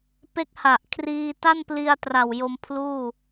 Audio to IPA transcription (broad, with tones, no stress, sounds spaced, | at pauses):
p e˦˥ k̚ h a˨˩ ʔ kʰ r iː˧ t a˥˩ n p l i˧ a̯ t r a˨˩ w j o˧ m pʰ l uː˥˩